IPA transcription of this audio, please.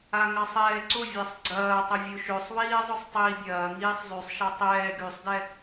a ŋ a sˤ ɛː ǀ ʊ vʲ a sˤ ɡ͡ǀ ɐː tˤ ɐ vʲ o ʃ ø sˤ w iː zˤ ʊ sˤ tˤ iː bʲ ɐː ŋ iː sˤ zˤ y sˤ ʃ a tˤ ɛː ɡ y sˤ d ɛ

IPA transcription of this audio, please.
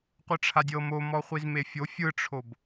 qʷ ɯ ʈ͡ʂʰ a dʲ ɤ m o m ɔ χʷ i z m e fʲ o fʲ ɯ ʈ͡ʂʰ o b

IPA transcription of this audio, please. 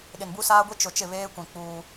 ɗ ɪ˨ n b u˦ s aː˦ ɡʷ i˦ t͡ʃ ʊ˨ t͡ʃ ɪ˦˨ β eː˦ kʷ ĩ˨ k͡p uː˦

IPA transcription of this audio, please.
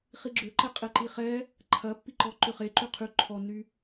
χ i ɡ͡ǁ ø ǃ ɛ qʼ e ǃ i χ ɛ | ǃʰ ɐ pː i ǃ ɔ ǃ ʏ χ e ǃ y qʰ y ǃʰ ɔ nː y

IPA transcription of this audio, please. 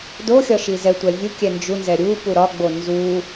d o xʲ ɒ ʃ i z ɛ tʷ ɛ vʲ u kʲ ɛ n d͡ʒ u n z ɛ ɾʲ u p u ɾ ɒ ɡ͡b o n z u

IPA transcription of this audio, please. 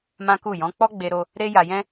m ã˦ k u˦˨ j ɔ̃˨˦ k͡p ɔ˦ ɡ͡b e˧ ɾ o˧ | ɾ e˦ j a˧ j ɛ̃˦

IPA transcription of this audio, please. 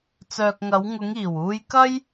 t͡s œː˨ k̚ ŋ ɐ˨˧ w ŋ ʊ˨˧ ŋ iː˨˩ w uː˧ j k ɐ˥ j

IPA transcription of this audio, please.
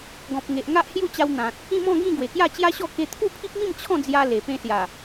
ɡ ɔ̃˨ p̚ ŋ e˨ ʔ ŋ a˦ ʔ h j u˥˧ t͡ɕ a˧ w n̪ ã˨ t̚ | ĩ˥˧ m ɔ̃˥˧ ɡ ĩ˥˧ ɡ w e˨˩ k j a˥˧ t͡ɕ j a˦ ɕ ɔ˥˧ k e˧ t̪ʰ u˥˧ pʰ i˦ p̚ m ĩ˥˧ m t͡ɕʰ ɔ̃˥˧ d͡z j a˧ l e˨˩ p ẽ˧ s j a˨˩

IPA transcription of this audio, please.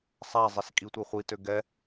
sˤ a zˤ e s kʼ i tʷ e χʷ i t ø ɡ ɛ

